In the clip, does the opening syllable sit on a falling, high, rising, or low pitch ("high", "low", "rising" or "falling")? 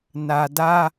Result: low